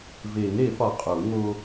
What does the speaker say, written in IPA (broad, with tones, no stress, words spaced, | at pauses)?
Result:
ve˨˩˦ŋɾe˨˩˦fɒ˨ qʼu˨˩˦ŋo˦